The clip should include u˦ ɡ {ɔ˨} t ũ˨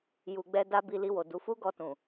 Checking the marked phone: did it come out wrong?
yes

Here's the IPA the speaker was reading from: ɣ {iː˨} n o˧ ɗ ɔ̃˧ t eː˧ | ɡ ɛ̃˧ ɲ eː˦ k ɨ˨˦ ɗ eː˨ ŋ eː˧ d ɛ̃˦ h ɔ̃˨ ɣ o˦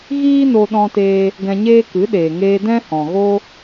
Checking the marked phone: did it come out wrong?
yes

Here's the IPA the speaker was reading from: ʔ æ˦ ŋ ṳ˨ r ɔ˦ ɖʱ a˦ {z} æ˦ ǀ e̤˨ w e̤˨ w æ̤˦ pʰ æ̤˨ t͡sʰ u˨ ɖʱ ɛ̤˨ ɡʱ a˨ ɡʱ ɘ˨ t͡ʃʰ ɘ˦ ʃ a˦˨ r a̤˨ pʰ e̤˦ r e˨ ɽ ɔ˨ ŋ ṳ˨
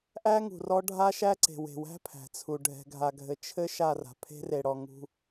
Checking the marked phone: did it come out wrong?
yes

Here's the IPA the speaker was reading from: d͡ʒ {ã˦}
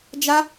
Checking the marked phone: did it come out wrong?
yes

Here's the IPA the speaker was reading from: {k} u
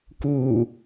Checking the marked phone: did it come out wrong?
no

